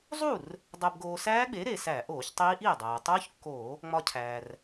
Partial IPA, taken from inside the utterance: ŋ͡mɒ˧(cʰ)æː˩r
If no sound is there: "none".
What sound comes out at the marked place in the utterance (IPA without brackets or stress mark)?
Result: cʰ